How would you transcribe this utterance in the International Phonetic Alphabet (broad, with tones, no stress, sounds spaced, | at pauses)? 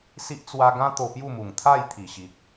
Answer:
s i˦ ʔ t͡s w a˧ ɡ ã˦ t̪ o˧ p j u˥˧ m u˨˩ ŋ t̪ʰ a˥˧ j t̪ʰ i˨˩ ɕ i˨ k̚